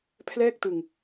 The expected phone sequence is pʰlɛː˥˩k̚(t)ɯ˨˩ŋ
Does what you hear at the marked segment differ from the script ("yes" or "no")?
no